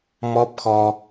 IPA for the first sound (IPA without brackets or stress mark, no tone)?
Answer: m